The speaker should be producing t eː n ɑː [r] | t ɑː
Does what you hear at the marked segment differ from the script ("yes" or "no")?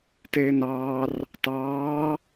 no